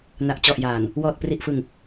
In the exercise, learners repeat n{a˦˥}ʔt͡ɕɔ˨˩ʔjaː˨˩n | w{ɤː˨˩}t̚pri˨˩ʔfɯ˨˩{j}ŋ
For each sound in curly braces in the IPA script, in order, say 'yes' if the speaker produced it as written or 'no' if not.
no, no, no

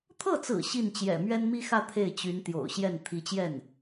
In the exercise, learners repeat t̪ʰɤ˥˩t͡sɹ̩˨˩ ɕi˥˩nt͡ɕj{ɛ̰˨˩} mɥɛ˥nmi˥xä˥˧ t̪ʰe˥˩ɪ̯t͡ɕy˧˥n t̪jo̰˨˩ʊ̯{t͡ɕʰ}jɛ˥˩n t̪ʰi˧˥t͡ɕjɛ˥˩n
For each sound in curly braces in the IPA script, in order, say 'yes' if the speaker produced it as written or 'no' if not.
yes, no

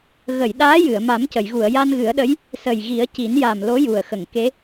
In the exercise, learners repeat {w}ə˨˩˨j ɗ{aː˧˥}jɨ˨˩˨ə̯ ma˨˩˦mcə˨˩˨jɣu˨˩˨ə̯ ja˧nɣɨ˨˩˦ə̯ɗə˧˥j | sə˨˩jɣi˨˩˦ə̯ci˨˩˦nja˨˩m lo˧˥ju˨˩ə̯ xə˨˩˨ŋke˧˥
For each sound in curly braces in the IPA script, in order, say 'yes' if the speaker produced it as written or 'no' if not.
no, yes

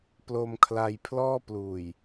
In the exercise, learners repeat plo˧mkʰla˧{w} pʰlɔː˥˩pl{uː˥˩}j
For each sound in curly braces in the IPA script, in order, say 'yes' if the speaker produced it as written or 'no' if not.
no, no

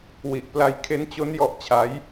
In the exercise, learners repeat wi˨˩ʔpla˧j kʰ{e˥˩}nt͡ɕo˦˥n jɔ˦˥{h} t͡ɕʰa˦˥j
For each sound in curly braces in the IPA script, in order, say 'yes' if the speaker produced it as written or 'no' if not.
no, no

